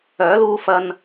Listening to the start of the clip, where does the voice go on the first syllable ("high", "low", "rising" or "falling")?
rising